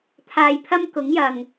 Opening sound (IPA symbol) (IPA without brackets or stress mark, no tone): t̪ʰ